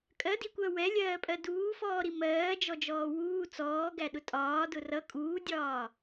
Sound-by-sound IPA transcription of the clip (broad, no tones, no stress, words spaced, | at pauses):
kʼɜdikʷɜ wɛlʲɜːpʼɜ duːfɔːɾi mɜːd͡ʒɔd͡ʒɔː wuː t͡sɔːɡæɗʊ tʼɒːdʊ rʌ kʼuːdʲɒː